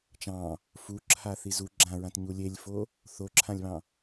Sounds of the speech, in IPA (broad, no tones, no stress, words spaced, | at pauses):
t͡ʃɑ̃ | fuǁʰaθi zu ɡ͡ǁãɹãtɲu lʲelʲfo | θoǁʰãlʲβɑ̃